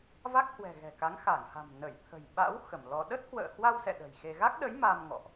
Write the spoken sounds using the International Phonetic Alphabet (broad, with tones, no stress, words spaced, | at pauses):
va˦˥k̚hwɛ̤˨˩ ɣɛ̤˨˩ka˨˦ŋ xa˧˩ŋha̤˨˩m nə˧˩jt̪ʰə̤˨˩j ɓa̰˧˥w xə˧˩mlɔ˧ ɗə˦˥t̚hwə̰ː˧˨hwa˧wsɛ̰˧˨ ɗə̤˨˩jxe˧ ɣa˦˥k̚ɗə˨˦j ma˧mŋɔ̰˧˨ʔ